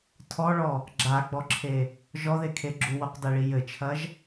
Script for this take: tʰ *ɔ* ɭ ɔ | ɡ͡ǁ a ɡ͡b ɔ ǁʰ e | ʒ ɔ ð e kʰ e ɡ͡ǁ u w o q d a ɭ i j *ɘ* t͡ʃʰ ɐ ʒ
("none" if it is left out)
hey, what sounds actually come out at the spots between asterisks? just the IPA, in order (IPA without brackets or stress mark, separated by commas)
ɔ, ɘ